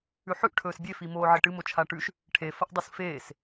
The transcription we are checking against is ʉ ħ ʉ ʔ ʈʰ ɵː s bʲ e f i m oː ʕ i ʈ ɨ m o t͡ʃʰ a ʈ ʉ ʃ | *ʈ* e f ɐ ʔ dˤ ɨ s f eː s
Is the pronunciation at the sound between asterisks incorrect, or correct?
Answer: incorrect: ʈʰ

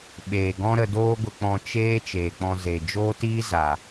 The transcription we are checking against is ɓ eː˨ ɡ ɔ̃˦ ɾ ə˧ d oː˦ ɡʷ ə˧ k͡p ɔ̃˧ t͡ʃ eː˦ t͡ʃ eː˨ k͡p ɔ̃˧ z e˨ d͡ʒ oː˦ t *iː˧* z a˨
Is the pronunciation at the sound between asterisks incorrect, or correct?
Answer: incorrect: iː˦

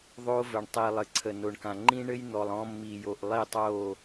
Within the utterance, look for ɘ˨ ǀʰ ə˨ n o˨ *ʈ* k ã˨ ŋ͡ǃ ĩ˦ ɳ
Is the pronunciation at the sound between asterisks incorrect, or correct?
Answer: incorrect: ɳ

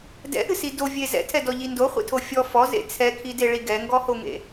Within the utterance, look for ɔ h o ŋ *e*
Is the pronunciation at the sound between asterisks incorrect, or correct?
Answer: incorrect: ḛ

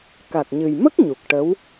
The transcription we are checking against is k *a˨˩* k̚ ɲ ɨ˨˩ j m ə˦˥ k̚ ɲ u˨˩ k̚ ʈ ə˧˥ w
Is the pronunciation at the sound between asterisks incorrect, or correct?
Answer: correct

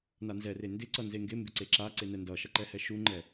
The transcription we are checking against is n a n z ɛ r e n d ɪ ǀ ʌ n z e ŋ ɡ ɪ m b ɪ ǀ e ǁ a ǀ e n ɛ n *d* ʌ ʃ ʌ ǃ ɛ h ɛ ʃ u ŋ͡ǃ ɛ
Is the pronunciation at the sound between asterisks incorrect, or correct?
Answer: correct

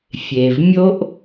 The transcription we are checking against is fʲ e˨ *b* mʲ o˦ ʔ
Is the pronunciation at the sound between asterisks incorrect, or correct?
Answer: incorrect: v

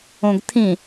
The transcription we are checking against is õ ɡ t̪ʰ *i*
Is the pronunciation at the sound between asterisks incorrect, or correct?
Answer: incorrect: ĩ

